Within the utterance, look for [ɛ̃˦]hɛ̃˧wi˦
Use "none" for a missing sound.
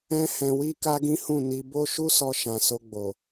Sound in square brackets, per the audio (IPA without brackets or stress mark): ɛ̃˦